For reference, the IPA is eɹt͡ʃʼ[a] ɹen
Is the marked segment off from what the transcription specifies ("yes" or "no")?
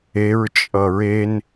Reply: yes